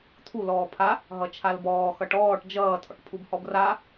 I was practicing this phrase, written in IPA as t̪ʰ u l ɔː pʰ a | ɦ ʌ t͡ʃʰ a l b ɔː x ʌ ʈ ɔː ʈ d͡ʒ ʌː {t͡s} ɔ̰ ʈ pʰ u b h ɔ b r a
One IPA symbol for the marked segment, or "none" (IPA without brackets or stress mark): tʰ